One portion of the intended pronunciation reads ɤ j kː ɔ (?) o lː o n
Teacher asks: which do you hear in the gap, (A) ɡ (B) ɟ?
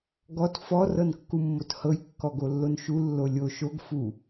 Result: A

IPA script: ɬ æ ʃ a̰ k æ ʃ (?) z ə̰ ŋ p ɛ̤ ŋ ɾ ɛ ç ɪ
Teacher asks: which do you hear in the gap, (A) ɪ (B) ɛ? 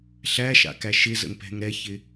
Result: A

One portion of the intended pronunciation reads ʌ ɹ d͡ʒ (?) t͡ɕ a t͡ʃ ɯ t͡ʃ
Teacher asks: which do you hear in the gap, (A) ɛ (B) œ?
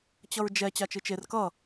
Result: A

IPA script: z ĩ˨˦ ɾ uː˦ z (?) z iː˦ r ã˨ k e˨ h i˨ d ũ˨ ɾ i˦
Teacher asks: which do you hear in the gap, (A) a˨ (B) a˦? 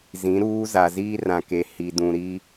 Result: A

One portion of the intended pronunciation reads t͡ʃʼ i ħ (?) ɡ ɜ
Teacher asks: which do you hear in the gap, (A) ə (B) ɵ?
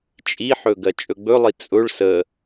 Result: B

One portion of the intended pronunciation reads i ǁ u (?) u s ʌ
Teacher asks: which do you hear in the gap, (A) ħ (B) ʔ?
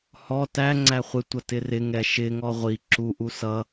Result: B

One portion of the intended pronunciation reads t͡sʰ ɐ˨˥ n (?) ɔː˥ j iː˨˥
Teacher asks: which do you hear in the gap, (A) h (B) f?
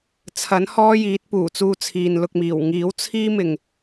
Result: A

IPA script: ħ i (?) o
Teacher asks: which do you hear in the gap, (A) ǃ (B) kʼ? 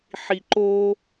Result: A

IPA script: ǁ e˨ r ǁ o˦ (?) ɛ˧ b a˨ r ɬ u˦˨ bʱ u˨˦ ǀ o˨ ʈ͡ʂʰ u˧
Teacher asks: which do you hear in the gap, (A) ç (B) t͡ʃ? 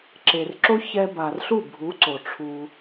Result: A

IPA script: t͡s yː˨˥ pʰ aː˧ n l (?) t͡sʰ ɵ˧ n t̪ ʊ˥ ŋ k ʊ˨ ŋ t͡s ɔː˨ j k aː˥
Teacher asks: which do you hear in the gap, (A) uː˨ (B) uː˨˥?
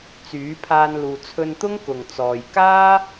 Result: A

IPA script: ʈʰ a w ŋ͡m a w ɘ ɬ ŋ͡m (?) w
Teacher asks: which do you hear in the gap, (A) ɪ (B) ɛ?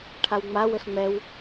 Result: B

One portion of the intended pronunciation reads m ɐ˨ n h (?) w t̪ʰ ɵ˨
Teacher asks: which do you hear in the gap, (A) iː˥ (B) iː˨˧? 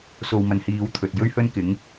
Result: B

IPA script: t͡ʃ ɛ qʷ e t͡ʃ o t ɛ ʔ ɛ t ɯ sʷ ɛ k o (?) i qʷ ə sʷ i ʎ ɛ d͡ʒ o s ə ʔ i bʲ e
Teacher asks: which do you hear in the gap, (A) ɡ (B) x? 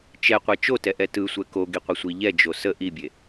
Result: A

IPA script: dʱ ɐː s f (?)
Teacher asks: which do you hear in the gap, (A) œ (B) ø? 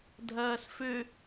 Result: B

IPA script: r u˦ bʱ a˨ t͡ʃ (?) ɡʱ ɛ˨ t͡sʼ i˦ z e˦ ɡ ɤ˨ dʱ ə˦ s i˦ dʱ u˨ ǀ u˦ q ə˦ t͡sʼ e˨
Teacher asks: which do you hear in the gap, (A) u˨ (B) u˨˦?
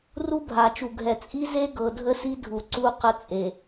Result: A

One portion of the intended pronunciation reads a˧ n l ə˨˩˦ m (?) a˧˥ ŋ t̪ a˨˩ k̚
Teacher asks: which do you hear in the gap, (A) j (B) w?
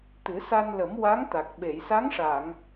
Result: B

